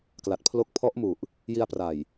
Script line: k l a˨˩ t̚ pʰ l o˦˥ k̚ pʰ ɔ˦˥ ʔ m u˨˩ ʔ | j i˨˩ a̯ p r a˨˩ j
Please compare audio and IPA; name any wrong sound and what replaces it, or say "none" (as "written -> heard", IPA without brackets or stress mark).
i˨˩ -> i˧